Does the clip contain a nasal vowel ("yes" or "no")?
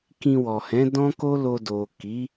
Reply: yes